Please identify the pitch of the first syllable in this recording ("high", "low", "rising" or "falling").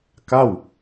falling